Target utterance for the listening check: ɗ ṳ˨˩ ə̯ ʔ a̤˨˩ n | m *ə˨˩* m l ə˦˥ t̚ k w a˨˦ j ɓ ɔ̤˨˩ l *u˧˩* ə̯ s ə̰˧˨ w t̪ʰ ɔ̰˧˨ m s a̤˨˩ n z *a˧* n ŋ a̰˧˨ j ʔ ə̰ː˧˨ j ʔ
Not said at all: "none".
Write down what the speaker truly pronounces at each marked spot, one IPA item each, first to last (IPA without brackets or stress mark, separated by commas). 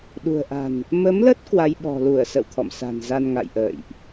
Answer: ə˨˦, u˧˩, a˧